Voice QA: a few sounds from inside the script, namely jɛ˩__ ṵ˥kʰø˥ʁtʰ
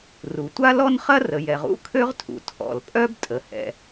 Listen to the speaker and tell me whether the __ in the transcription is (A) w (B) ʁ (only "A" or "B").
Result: B